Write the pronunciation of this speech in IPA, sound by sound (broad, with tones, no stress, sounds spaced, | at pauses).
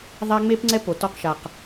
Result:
ðˤ a˦ ŋ͡m e˦ p ŋ͡ǀ ɛ˦ p o˨ t ɔ˦ q ʃ a˨ q